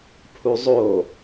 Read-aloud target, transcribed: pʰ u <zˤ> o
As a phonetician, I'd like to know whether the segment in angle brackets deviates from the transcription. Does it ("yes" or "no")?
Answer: no